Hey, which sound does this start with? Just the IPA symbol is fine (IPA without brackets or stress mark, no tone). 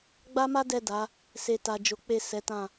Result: ɡ͡b